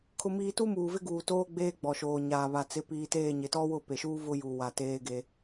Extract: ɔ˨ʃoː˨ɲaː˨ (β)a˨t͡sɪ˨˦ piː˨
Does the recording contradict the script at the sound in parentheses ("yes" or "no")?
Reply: no